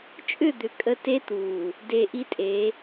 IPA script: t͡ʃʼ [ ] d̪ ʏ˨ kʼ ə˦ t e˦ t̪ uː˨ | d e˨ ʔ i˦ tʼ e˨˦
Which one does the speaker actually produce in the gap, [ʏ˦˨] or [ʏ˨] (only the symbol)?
ʏ˦˨